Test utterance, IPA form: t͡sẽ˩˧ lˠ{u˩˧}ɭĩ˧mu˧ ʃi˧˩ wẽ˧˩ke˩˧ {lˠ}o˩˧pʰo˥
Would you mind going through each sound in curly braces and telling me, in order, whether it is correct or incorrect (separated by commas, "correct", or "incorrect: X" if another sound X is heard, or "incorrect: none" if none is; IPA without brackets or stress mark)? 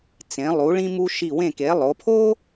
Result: correct, correct